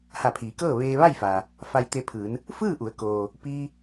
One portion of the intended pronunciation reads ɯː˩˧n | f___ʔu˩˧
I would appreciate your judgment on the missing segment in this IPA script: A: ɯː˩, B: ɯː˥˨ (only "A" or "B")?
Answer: B